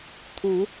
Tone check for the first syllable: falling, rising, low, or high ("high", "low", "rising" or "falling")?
rising